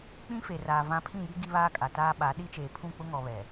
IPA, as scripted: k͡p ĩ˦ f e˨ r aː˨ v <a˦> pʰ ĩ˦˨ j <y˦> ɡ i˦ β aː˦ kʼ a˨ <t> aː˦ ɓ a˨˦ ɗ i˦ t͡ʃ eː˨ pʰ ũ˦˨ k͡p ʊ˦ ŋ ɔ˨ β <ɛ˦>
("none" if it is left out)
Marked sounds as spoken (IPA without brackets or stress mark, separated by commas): ã˦, i˦, t, ɛ˨